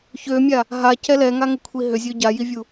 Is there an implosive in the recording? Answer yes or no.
no